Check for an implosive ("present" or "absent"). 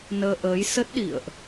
present